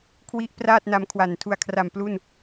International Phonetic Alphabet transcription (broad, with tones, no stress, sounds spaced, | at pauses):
kʰ w i˦˥ ʔ p r aː˥˩ t̚ n a˦˥ m kʰ w a˨˩ n tʰ u˨˩ a̯ kʰ r a˨˩ m p l u˥˩ n